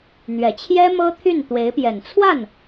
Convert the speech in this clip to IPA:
n̪ɥɛ˨˩t͡ɕʰjɛ˥ mɤ˥t̪ʰy˥˩nt̪we˧˥ɪ̯pjɛ˨˩n t͡sʰwa˥˩n

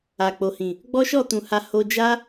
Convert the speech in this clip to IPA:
a˨k͡po˨hĩ˨ | ɡ͡bɔ˦ʃɔ˦˨tũ˨ ha˧ho˧d͡ʒa˦

